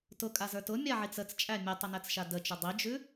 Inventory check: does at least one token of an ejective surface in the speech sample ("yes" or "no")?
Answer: yes